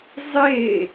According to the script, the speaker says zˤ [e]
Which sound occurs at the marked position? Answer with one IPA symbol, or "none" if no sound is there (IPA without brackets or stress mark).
e